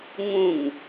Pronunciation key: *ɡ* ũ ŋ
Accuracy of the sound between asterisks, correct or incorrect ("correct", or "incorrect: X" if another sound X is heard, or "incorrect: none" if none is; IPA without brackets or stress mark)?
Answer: incorrect: ŋ